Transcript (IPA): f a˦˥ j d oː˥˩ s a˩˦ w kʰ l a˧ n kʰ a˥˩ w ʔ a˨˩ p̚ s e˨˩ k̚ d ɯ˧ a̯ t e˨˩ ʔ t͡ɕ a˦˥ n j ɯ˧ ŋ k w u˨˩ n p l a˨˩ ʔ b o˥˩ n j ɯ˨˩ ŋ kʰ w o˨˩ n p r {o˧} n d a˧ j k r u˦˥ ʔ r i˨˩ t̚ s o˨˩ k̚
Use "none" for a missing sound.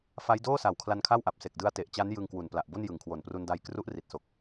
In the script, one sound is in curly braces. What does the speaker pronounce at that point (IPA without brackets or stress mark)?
u˧